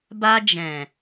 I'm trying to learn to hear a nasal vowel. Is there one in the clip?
yes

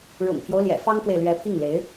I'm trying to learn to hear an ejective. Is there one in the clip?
no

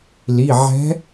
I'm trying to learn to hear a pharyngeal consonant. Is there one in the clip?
yes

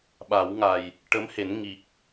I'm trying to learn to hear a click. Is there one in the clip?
no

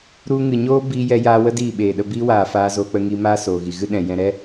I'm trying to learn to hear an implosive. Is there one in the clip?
yes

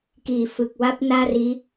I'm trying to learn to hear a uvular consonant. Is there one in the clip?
no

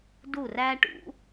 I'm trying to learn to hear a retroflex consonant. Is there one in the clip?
yes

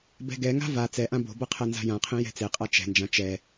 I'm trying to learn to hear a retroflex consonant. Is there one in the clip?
no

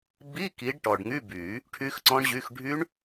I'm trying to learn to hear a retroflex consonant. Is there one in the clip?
yes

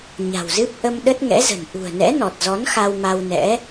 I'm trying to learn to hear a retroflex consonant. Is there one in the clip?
no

